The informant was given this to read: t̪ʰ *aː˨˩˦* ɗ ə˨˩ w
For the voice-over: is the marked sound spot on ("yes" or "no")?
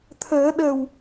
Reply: no